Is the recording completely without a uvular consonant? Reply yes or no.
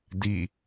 yes